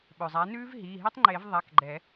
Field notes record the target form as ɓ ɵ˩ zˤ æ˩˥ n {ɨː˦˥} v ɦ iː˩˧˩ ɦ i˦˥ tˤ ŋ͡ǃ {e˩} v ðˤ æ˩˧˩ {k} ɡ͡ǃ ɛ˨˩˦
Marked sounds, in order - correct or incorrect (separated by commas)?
incorrect, incorrect, correct